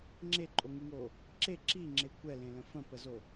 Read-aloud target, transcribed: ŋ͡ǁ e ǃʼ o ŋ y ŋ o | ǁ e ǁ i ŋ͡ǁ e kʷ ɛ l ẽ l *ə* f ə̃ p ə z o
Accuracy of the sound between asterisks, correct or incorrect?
incorrect